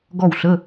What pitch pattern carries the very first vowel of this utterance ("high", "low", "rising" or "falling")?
falling